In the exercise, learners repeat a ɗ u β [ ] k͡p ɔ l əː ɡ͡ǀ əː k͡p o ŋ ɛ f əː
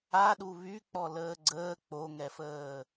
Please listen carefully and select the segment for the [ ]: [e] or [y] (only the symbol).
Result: y